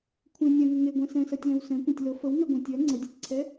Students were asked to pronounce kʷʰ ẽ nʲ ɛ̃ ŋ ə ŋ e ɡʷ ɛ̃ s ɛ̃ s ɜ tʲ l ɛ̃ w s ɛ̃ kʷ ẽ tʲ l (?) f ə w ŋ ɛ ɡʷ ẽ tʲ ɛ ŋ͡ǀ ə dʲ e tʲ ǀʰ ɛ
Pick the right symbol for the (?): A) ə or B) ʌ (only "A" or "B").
A